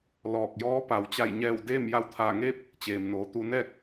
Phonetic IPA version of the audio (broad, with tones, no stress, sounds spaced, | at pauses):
l ɔː˧˩ k̚ j ɔː˧˥ p a˩ w t͡ɕ a˧˩ j ɲ ɛː˧˩ w d eː˥˨ m j a˧ w t̪ʰ aː˧˩ ŋ eː˥˨ p̚ | t͡ɕ eː˩ m n oː˩ t̪ u˧ n ɛː˥˨ k̚